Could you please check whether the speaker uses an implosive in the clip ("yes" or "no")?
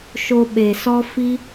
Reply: yes